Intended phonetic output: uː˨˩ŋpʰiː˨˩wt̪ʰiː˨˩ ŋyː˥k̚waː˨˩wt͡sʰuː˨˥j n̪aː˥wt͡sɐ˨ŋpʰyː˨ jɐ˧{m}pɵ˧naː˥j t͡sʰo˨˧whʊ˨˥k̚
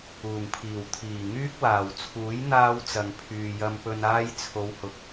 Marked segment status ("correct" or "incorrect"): correct